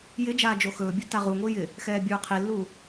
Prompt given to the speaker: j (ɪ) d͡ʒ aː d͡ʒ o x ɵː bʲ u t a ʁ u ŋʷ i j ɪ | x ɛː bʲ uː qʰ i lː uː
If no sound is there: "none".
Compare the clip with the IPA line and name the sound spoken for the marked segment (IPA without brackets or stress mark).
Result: ɪ